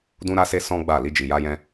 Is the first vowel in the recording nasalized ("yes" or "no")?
yes